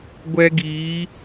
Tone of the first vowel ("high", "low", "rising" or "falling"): high